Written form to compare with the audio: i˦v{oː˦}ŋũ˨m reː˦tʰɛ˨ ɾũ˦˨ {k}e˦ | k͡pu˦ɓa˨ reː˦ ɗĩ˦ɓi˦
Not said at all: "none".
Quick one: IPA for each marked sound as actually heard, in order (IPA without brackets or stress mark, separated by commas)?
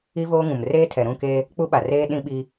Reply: oː˦, k